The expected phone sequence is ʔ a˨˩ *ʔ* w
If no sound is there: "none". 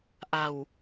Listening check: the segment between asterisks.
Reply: none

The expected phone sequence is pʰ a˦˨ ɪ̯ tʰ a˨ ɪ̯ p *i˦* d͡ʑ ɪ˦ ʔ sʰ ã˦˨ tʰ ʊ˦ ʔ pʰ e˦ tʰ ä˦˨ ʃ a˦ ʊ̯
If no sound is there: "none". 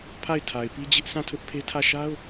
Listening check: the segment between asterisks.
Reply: i˦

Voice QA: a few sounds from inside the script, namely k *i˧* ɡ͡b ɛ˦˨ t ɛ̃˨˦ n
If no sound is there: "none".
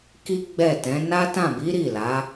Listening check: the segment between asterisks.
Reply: i˦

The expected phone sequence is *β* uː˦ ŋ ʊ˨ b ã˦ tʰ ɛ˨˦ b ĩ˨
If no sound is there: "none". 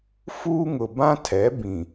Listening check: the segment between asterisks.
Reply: f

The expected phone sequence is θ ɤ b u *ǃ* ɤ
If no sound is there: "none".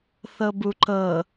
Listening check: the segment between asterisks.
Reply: ǃ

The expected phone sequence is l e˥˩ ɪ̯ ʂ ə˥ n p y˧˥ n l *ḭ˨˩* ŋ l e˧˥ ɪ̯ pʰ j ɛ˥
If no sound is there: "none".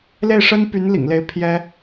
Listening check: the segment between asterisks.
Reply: ḭ˨˩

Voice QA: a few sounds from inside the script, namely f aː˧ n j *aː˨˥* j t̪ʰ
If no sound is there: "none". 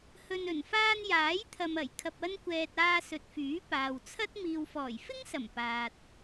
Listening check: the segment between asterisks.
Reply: aː˨˥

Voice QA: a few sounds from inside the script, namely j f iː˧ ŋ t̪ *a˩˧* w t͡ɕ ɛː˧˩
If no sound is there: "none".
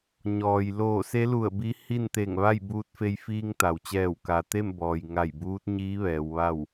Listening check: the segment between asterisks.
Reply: a˩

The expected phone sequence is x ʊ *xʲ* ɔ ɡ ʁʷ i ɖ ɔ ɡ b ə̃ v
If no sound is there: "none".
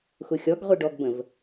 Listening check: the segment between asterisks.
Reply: xʲ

